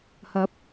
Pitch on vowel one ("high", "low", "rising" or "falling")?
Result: rising